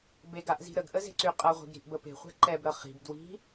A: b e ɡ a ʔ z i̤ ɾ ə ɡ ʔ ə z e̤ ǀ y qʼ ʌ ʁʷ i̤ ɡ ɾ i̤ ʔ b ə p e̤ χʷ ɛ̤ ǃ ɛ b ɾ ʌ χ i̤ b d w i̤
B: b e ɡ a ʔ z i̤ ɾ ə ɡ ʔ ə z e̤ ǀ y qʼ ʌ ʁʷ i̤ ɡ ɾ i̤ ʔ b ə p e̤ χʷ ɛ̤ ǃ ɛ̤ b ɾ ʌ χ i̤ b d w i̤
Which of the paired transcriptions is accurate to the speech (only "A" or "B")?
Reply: A